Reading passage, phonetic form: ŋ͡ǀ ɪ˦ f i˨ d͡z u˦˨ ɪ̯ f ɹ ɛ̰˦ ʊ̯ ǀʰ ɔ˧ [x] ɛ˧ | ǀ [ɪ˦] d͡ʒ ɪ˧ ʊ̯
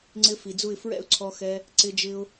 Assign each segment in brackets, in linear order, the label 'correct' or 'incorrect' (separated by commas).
correct, incorrect